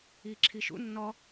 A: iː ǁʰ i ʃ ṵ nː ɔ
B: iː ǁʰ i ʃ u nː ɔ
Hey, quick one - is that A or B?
A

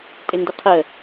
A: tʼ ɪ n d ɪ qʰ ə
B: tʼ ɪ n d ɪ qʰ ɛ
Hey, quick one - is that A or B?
A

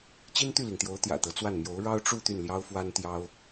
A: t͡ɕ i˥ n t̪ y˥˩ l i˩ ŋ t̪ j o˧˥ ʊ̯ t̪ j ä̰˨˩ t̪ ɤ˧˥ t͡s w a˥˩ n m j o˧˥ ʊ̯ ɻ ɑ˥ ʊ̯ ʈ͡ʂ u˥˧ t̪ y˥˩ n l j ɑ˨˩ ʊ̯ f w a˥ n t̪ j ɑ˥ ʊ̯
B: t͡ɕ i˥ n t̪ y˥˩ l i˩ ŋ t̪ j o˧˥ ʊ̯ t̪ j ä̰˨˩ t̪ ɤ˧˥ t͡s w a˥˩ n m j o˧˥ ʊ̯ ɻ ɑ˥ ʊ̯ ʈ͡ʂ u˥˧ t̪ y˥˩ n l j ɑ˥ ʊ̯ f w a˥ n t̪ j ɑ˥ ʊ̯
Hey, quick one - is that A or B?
B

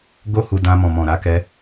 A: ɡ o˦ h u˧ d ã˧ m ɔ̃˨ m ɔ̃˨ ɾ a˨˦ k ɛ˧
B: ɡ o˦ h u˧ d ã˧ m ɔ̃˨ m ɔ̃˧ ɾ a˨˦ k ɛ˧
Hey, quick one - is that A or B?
A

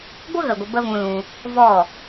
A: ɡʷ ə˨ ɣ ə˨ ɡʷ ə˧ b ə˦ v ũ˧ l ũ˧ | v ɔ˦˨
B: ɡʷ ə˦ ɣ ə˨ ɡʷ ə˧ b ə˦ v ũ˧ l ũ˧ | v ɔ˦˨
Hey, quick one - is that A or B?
B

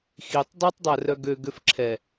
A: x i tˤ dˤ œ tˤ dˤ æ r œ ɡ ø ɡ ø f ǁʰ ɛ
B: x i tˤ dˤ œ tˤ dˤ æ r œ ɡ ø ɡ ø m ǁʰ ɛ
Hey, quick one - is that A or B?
A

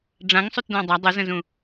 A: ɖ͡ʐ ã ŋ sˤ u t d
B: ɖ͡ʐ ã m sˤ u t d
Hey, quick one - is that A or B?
A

